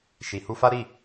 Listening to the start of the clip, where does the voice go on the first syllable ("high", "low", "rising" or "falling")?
low